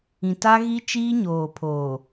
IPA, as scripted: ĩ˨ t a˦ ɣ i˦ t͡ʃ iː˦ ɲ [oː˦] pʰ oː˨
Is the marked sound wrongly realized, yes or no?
yes